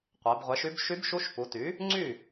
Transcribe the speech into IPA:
qʷ ɛ˩˧ b ʁʷ ɛ˩˥ ʃ y˧˥ b ʃ y˧˥ b ʃ u˧˥ ʃ p u˩˧ t y˩˥ | ŋ͡ǀ y˥˩

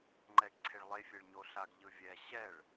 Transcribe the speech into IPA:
ŋ͡ǃ ɛ ɡ ǀʰ e ɭ lˠ e fʲ e ɭ ɲ o ɬ a ɡ ʎ ɯ vʲ ɛ ɕ ɛ ɭ

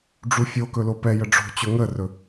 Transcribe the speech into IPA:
ɖ͡ʐ u fʲ o k ɵ l o p ɛ j ə ɖ͡ʐ o̤ t͡ɕ ɵ ŋ ə r ɵ

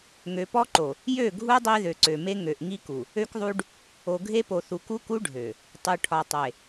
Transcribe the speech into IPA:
ŋ ø˨ p ɔ˦ ǃ o˨ | j ø˦˨ ɡʱ u˦ dˤ i˦ ð ø˨ ǀ ø˨ m e˦ ŋ ø˨ ʔ ŋ i˦ k u˨ | ø˦ k ðˤ u˦ ɖ | o˨ ɡʱ e˦ p o˨ θ u˨ k u˦ k u˦ ɖʱ ø˨ | tˤ u˨ ʈʰ ɒ˨ tˤ e˨

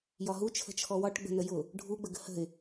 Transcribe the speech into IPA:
j ɒ ɦ u t͡ʃʰ ə̤ t͡ʃʰ ɔ w ɒ ʈ ɡ͡b ə̤ n ə j ʊ | ɖʱ u ɡ͡b ə ɡ ə̤ h ə̤ ɪ̯

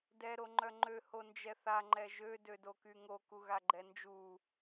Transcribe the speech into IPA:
d ɛ ɾ o ŋ͡ǃ œ ŋ͡ǃ ø h o n d͡ʒ ɛ θ a ŋ͡ǃ ɛ ʒ ø d ø d o k y ŋ o k u ɣ a ɡ͡ǃ ɛ n d͡ʒ u

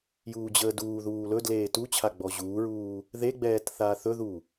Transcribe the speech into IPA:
j uː d͡ʑ əː d uː ð uː l ɵ d l eː t u t͡ɕʰ a ɡ͡b ɔ ʑ uː ɹ uː | ð e ɡ͡b ɛː t θ aː θ ɵ ð u

